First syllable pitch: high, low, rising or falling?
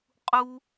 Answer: high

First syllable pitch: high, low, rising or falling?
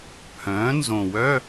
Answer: rising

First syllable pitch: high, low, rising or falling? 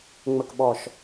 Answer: low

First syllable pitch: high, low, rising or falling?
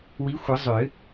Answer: rising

